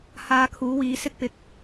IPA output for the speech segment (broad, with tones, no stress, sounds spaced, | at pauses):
h aː˧ kʰ uː˨˥ w iː˨˥ s ɪ˥ k̚ p ɪ˧ k̚